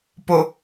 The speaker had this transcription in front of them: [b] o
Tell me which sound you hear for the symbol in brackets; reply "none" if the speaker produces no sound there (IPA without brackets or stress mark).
p